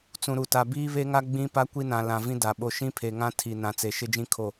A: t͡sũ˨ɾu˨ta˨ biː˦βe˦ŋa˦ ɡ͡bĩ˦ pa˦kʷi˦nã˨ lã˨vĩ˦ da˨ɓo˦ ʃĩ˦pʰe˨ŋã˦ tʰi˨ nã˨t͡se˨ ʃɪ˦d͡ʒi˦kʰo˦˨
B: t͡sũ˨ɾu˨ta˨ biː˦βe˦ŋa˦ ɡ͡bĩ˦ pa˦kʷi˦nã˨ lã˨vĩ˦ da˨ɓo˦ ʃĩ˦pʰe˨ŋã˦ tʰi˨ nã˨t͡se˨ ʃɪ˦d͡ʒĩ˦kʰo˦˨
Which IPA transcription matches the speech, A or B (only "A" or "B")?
B